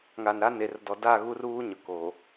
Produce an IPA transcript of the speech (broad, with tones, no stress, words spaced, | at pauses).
ŋa˨nɾa˦ ne˨rdɔ˨da˦˨ ɣu˦ruː˦ ɲʊ˨ ko˨